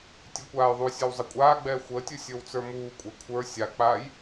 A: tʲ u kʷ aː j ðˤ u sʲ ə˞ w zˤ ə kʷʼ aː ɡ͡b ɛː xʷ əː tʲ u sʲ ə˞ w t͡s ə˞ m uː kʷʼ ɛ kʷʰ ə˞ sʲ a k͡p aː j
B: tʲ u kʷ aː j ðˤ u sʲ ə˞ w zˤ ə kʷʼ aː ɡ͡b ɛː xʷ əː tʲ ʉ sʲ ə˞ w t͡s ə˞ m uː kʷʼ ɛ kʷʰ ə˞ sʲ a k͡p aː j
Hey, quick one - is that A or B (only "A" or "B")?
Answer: A